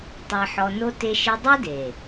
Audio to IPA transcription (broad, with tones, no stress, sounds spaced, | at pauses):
tˤ ɛ˧ ħ ɔ˧ n o˦ t e˧ ʃ i˧ dˤ o˦ d e˨